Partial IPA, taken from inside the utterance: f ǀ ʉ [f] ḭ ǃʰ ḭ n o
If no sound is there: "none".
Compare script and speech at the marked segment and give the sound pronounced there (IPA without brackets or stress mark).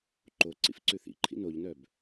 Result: θ